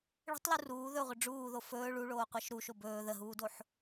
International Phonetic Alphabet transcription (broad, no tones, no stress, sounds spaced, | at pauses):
ɭ ə̤ tˤ l u r uː ð ɵ ʁʷ ə ɖ͡ʐ uː ð o f ɵː ɭ u ɭ oː qʷ ɜ ʃ ɾ u ʃ o b ɵː ð ə ɦ uː d o ħ